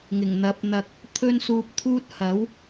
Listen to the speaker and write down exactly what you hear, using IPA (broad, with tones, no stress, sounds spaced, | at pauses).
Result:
ŋ ɪ˨˩ ŋ n̪ ɐ˨˥ p̚ n̪ ɐ˨ k̚ | t̪ʰ ɵ˥ n s uː˧ p̚ t̪ʰ uː˥ t̚ h ɐ˨˥ w